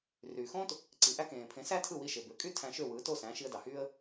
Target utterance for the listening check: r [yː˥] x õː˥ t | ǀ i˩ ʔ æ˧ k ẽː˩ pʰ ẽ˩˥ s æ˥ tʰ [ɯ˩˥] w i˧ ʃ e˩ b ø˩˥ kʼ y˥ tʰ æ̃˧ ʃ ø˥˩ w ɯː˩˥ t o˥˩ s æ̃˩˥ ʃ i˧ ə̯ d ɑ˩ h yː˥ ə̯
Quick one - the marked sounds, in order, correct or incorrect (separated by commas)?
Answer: incorrect, incorrect